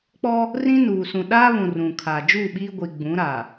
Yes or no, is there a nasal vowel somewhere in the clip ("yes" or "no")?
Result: yes